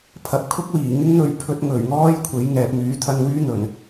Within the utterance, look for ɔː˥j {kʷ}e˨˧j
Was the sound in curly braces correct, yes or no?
no